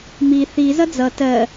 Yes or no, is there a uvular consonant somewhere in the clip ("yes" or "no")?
no